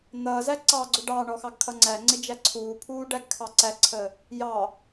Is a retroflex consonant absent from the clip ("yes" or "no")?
no